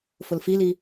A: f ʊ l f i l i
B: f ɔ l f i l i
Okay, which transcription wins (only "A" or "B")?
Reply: A